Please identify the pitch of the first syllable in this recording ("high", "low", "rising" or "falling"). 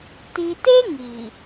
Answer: low